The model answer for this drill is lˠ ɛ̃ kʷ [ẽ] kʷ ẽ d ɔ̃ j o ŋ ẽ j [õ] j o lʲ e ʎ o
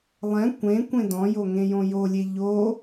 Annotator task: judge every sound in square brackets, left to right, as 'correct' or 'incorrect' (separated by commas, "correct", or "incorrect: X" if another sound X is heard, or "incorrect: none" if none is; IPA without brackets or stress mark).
correct, correct